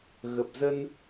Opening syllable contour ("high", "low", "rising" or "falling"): low